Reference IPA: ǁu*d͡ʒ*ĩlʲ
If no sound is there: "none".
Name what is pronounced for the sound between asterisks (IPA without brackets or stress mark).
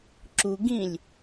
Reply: ɡ